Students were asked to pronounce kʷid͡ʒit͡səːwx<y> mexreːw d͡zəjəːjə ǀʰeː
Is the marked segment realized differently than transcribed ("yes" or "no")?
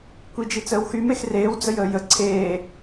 no